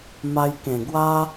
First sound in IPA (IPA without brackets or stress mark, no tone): m